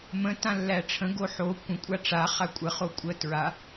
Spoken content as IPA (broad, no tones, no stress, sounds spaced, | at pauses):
m ə̃ t ã lː æ ʈ͡ʂʰ ə̃ ɡ o ħ o kʷ ə̃ kʷʼ a ʈ͡ʂ a χ a kʷʼ ə χ o kʷʼ ə t ɹ a